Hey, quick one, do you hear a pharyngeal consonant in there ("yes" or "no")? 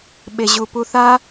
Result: no